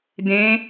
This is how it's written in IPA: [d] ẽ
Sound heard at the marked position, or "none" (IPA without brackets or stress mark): d